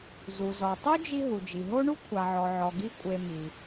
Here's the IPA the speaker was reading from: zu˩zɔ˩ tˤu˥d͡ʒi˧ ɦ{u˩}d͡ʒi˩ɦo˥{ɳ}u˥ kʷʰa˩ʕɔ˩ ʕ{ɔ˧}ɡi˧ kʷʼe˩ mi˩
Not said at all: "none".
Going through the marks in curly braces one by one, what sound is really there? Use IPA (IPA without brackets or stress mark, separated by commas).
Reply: u˩, ɳ, ɔ˩